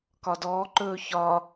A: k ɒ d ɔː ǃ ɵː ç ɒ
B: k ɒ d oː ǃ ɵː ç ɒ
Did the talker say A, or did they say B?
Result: A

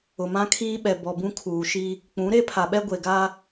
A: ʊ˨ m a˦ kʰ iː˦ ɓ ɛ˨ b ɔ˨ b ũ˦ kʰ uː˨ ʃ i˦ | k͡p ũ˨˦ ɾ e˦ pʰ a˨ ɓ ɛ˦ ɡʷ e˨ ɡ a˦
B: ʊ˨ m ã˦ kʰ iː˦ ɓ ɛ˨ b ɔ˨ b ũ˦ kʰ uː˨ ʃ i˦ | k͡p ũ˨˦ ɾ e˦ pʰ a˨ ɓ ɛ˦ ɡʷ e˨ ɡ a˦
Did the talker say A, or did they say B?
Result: B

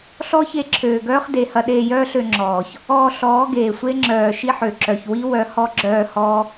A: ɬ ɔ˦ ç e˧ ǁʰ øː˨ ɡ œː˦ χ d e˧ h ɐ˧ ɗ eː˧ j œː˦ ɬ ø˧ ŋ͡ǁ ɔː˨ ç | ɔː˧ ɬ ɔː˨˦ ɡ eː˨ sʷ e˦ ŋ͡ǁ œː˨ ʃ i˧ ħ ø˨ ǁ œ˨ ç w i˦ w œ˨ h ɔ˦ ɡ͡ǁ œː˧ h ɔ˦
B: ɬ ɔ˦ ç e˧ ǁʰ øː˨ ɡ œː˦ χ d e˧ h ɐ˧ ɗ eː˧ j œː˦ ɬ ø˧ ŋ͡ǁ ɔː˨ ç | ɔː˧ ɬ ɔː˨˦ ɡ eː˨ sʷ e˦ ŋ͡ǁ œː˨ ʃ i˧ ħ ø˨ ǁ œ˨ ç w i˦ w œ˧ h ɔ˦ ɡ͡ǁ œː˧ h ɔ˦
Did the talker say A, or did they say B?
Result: B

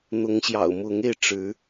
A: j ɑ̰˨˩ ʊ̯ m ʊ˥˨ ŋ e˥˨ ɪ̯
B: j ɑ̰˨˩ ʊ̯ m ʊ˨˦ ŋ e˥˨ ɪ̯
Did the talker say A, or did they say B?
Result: B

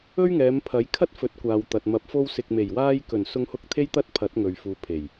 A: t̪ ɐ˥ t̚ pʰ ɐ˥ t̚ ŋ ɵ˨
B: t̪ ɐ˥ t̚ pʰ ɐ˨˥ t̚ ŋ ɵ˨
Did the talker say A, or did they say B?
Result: B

